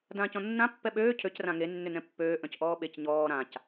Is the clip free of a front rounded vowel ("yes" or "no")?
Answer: no